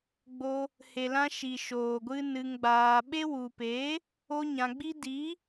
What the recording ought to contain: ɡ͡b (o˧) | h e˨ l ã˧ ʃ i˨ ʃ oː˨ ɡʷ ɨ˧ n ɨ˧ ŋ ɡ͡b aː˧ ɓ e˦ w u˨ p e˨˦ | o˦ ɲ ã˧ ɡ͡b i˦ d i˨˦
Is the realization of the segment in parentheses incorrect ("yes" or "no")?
no